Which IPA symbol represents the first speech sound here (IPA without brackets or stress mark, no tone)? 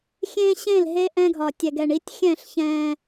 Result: xʲ